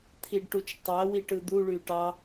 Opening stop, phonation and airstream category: aspirated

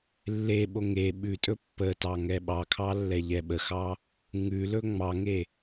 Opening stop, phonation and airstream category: implosive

